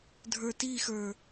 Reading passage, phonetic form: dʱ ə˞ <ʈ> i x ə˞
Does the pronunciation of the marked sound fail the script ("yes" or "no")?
yes